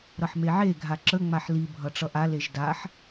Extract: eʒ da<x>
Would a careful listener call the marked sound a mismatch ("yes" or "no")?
yes